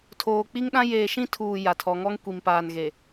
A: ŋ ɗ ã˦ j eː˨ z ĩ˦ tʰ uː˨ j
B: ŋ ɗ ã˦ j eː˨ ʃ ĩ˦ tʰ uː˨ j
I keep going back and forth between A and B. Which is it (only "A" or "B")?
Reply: B